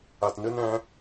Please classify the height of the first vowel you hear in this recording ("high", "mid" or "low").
low